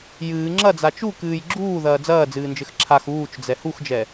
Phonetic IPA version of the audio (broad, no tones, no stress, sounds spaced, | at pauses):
j ɨː ŋ͡ǁ ɐ d͡z a t͡ʃ u k ɨː j ɡ͡ǁ uː ð ɐː d͡z ɐː d͡z ɨː n d͡ʒ ɘ x ǁʰ a x uː t͡ʃ d͡z ɛ h u x d͡ʒ ɛ